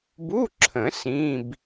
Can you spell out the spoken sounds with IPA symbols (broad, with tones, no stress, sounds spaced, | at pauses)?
b u˧˥˧ ǁʰ ə̃˨˩˦ s ĩ˧˥˧ b